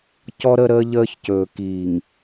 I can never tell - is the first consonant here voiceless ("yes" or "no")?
yes